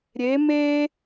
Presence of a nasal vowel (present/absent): absent